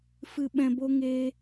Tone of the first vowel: low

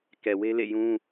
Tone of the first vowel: low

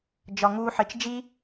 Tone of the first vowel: low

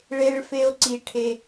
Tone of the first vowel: low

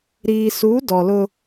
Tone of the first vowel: low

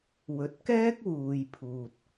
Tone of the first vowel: low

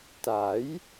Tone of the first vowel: rising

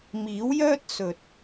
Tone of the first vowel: rising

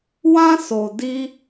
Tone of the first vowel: high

